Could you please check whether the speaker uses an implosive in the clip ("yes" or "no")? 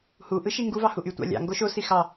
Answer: no